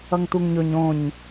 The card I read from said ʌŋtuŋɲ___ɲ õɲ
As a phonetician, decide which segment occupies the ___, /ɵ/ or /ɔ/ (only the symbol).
ɵ